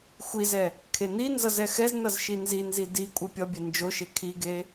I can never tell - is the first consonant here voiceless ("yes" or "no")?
yes